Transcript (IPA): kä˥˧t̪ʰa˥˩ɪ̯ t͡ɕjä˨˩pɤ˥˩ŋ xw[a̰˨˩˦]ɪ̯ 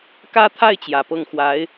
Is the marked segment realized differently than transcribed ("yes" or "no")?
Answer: yes